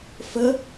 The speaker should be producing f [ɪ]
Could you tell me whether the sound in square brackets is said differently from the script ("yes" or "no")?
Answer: yes